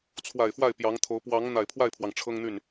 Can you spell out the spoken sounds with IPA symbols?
t͡sʰ w a˨˩ ɪ̯ f w a˥˩ ɪ̯ p j ɑ˧˥ ŋ t̪ʰ o˧˥ ʊ̯ p w ɑ˧˥ ŋ n̪ a˨˩ ɪ̯ pʰ w a˥˩ ɪ̯ pʰ w ɑ˩ ŋ ʈ͡ʂʰ ɤ˥ ŋ n̪ y˥˩ n

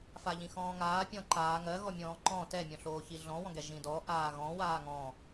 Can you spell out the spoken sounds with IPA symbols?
f a ʎ ĩ x ɔ̃ː ŋ aː pʲ ɔ̃ ǃ aː ŋ ɜ ɣ ɔ mʲ ɔ̃ː ǃ ɔ̃ t ɛ mʲ ɔ̃ ɬ oː ç i ɮ ɔ̃ w ɔ̃ ɡ ɛ ʒ ĩ d ɔ ʔ aː ɣ ɔ̃ w aː ŋ ɔ̃ː

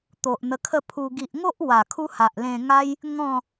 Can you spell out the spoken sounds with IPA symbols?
t̪ o˨ ʔ n̪ ə˧ kʰ ə˥˧ pʰ u˧ ɡ i˨ ʔ ŋ o˦ ʔ w a˨˩ kʰ u˦ h a˨ ʔ l ẽ˧ ŋ a˦ j | ŋ ɔ̃˥˧

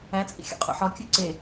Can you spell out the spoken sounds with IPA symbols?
æ t͡sʼ ḭ xʲ o̰ qʼ ṵ ħ ɒ kʲ u ǀ e

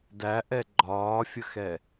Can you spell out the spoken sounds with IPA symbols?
d æ ʔ ɛ ɡ͡ǃ ɒː fʲ ə x ɛ

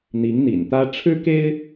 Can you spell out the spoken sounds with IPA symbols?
n̪ i˧˥ ŋ n̪ ḭ˨˩ n t̪ ä˥ ʈ͡ʂʰ ɻ̩˥ k e˥ ɪ̯

